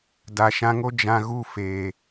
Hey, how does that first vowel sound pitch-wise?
low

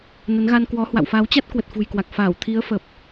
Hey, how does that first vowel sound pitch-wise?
rising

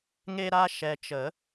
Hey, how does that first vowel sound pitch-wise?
high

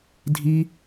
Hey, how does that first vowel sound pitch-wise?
high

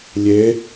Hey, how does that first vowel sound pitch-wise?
rising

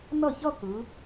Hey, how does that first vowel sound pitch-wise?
falling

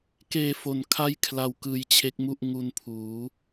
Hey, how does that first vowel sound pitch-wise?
low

